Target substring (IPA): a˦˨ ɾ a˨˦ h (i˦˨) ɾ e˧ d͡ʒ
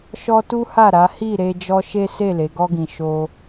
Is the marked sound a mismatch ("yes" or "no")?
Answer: no